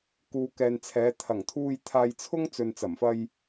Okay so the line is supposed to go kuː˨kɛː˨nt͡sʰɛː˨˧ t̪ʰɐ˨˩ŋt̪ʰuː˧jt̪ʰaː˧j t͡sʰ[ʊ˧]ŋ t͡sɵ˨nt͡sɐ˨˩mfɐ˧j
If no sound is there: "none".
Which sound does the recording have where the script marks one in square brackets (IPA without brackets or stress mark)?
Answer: ʊ˥